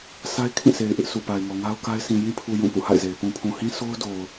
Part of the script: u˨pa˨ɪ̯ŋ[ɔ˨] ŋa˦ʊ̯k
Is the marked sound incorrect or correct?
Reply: correct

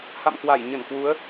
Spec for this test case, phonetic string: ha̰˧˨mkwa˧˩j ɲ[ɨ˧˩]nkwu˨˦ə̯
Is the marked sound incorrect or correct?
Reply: incorrect: ə˧˩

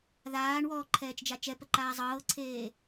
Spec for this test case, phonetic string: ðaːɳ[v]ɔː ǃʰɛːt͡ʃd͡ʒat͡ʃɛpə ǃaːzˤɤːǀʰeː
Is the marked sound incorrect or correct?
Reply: incorrect: w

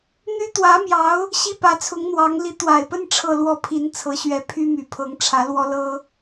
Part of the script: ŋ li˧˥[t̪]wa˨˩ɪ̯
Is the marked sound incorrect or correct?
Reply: correct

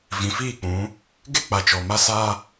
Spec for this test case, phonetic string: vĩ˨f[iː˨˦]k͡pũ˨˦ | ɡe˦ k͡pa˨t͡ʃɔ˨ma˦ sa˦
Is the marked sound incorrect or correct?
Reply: incorrect: iː˦˨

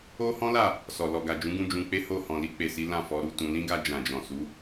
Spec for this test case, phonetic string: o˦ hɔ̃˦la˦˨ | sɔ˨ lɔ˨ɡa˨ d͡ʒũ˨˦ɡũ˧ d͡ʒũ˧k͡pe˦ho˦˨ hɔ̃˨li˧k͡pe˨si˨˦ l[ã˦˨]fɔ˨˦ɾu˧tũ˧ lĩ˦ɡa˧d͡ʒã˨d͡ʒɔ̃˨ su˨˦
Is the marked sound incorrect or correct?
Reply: correct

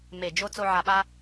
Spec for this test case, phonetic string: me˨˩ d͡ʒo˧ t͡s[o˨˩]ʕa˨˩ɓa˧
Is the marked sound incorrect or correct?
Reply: incorrect: o˧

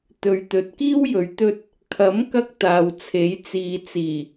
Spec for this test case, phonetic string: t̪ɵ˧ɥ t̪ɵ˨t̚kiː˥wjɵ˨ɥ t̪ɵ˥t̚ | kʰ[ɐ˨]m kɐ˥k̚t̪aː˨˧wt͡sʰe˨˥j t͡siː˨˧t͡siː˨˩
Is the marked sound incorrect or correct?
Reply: incorrect: ɐ˨˥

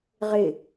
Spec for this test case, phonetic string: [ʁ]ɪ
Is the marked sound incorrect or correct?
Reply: correct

